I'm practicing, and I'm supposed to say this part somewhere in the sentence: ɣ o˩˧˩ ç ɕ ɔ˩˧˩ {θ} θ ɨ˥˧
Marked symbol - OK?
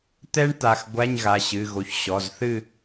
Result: no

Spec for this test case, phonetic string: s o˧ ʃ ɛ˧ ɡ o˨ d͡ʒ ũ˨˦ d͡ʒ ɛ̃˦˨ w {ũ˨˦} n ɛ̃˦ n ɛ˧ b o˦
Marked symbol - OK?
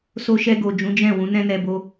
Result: yes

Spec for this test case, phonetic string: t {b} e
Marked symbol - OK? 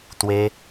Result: no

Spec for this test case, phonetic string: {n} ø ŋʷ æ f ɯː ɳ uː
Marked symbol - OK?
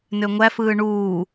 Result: yes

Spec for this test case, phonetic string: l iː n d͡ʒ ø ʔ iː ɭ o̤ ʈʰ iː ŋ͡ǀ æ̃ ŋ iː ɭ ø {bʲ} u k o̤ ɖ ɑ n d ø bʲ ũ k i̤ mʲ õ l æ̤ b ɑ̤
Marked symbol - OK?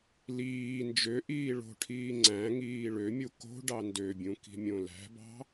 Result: no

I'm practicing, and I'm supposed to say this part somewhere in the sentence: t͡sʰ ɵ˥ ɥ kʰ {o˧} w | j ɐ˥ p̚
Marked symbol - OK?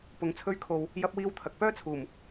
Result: yes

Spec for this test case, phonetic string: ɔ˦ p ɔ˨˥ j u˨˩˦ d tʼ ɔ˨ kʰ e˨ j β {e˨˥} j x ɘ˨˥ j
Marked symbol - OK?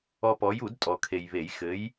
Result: no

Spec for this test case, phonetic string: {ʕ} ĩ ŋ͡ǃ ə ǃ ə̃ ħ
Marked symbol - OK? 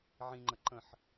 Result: yes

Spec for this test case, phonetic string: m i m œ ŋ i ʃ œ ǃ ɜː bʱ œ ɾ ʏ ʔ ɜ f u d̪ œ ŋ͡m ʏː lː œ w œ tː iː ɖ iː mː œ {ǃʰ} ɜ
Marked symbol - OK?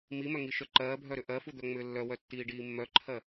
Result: yes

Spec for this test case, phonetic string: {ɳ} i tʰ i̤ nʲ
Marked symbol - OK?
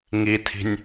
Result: no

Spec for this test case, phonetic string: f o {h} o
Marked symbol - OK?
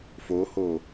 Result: yes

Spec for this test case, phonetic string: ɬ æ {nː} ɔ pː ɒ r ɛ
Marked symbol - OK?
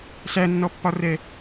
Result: yes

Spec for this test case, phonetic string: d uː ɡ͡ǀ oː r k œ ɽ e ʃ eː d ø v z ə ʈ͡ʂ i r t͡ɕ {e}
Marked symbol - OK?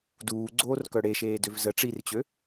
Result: no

